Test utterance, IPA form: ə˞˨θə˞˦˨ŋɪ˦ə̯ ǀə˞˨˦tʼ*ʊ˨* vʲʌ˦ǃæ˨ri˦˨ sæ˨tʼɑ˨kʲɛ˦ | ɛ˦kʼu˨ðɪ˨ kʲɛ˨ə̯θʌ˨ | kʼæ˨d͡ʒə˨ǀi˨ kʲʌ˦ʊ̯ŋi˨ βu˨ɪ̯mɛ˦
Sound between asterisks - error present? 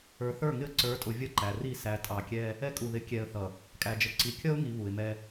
no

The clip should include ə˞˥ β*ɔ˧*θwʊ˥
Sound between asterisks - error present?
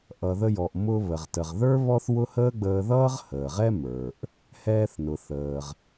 yes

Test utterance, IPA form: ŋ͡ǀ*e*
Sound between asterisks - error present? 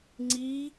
yes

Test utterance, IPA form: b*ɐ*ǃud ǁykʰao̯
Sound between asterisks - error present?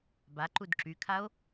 yes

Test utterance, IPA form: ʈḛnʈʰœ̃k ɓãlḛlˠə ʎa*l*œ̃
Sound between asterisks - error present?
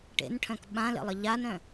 yes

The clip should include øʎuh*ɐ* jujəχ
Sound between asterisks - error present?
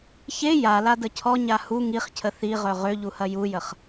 no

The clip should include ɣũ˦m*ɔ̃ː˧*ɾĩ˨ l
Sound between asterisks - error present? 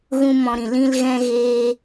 yes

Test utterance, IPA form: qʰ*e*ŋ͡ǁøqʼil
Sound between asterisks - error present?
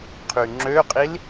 yes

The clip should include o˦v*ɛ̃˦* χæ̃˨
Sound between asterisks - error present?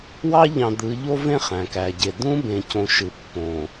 yes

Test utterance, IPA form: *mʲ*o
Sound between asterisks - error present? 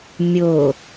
no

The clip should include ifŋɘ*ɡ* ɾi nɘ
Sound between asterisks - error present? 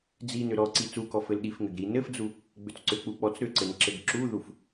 no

